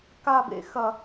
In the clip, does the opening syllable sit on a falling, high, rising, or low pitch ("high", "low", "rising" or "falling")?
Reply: falling